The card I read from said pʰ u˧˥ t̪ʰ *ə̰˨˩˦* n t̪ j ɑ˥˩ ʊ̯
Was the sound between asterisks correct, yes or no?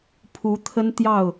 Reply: no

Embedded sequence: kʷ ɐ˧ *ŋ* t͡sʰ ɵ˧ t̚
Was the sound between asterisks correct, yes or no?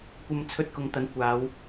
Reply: no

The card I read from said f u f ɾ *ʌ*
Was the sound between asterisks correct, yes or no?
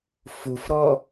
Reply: no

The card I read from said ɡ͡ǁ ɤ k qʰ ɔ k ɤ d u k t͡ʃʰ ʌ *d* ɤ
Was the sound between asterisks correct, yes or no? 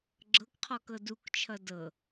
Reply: yes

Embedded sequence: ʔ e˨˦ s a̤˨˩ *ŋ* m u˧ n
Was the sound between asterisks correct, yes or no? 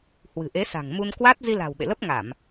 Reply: yes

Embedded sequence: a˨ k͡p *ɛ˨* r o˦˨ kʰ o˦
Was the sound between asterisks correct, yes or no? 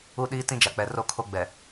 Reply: yes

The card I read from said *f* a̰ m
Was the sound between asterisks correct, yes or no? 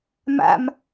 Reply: no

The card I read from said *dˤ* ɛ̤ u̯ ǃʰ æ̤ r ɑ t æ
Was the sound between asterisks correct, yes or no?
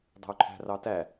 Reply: yes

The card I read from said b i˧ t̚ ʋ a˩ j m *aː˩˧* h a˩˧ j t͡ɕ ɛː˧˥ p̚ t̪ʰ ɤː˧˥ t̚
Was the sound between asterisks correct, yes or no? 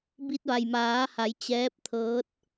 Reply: yes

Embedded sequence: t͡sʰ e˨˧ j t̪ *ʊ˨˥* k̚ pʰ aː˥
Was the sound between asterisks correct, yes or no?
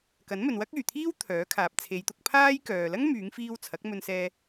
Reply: yes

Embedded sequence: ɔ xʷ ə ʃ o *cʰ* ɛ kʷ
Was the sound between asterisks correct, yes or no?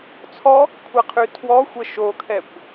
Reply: no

